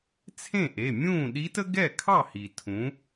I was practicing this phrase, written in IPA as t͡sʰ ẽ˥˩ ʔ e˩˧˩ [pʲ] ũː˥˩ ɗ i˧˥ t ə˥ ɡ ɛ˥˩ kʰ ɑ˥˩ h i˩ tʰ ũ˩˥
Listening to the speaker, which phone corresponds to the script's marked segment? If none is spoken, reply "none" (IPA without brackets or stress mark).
mʲ